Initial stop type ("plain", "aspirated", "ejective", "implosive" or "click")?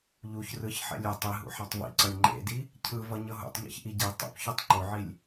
plain